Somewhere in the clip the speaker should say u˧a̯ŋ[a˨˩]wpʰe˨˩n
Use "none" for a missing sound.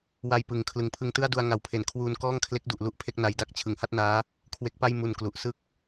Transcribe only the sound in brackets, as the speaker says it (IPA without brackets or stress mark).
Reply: a˨˩